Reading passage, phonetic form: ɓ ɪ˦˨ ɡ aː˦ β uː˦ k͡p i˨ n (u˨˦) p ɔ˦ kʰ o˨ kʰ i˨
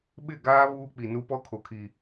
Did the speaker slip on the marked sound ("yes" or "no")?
yes